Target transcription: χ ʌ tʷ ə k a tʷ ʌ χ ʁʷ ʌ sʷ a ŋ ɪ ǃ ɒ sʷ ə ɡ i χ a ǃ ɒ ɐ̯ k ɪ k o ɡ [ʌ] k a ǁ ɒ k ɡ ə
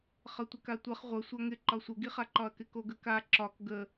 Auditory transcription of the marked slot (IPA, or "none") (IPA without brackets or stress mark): ə